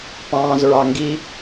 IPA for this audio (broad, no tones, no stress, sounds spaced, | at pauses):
p ɑ̃ː z ɹ ɑ ŋ ɡ i